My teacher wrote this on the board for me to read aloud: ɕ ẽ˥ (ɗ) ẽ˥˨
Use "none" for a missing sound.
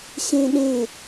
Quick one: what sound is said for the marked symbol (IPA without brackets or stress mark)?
ɗ